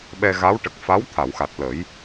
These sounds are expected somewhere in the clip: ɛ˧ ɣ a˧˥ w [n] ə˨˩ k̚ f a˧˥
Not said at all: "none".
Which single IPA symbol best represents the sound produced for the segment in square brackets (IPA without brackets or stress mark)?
ʈ